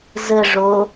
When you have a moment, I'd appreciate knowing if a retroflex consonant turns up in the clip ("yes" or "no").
yes